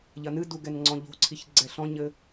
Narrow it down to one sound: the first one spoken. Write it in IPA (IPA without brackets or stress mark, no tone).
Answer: ʎ